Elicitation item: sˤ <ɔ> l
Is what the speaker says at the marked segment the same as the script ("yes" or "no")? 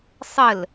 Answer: no